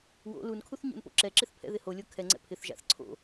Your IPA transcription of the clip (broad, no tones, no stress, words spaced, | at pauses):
wo̰ lunkʰuθɲṵnpo̰ ǁɛǁɪθpʰɛ̰ðɪ holʲo kʰɛŋ͡ǀɛ̰ pʰɪθʒa̰θ ǀʰo̰